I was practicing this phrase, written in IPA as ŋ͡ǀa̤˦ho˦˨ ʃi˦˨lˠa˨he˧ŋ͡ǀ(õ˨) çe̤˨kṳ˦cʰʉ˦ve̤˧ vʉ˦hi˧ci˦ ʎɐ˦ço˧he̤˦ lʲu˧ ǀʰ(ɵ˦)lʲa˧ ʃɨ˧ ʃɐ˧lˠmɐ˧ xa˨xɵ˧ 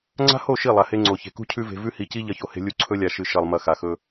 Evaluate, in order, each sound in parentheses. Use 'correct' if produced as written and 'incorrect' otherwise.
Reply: incorrect, correct

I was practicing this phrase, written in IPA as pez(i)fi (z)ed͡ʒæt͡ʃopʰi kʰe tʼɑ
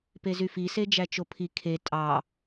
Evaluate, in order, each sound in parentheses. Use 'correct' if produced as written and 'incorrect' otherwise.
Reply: incorrect, incorrect

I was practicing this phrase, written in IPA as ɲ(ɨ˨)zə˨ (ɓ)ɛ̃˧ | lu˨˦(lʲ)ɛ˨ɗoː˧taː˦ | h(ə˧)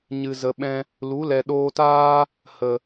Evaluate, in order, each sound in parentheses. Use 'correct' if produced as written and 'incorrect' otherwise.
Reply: correct, correct, incorrect, incorrect

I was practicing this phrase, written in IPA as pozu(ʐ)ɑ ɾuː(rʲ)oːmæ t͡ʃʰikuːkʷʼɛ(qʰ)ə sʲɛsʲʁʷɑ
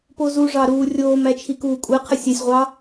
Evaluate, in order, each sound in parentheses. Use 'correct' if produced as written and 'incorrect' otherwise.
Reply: correct, correct, correct

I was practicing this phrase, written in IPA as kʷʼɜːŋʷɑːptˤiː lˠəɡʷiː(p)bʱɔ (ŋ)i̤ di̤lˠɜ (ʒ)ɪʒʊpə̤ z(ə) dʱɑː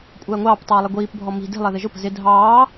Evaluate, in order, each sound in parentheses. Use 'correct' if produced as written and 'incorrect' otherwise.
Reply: correct, incorrect, incorrect, incorrect

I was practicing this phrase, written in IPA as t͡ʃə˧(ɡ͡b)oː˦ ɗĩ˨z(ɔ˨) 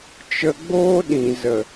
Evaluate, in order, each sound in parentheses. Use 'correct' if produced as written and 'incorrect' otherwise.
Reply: correct, incorrect

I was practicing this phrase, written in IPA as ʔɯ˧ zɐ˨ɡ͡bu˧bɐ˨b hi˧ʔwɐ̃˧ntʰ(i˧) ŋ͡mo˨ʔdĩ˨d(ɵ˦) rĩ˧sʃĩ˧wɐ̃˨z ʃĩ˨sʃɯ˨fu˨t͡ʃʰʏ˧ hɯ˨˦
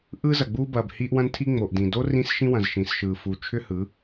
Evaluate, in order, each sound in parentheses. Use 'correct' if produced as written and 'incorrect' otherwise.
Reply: correct, incorrect

